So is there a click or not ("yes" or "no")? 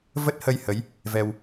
no